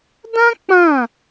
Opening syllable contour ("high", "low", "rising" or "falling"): high